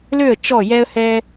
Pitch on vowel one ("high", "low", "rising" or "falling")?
falling